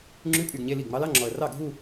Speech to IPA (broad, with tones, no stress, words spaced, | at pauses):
ŋ͡ǁʉ˧˥˧ pʼy˨˩ɡ ɲe˧˥˧li˥˩ɡ ŋ͡mɑ˨˦lɑ˧˥˧ŋ͡ǁɔ˨˩ə̯rɑ˥˩ ɡʱu˥˧